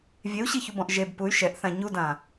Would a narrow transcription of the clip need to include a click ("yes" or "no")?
no